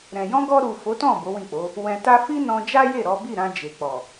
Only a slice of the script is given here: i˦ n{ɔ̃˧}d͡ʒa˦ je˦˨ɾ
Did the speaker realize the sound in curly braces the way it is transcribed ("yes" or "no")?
yes